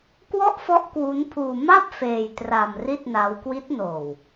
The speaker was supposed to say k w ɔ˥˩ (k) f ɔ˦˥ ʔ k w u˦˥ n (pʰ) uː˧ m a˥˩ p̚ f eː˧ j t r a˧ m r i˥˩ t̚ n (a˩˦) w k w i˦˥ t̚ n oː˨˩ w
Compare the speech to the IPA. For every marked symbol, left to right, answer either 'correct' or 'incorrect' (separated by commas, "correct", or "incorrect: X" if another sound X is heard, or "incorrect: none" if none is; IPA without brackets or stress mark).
incorrect: ʔ, correct, incorrect: a˦˥